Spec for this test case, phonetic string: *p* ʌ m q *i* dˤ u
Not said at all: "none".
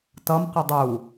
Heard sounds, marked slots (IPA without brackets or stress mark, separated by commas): t, y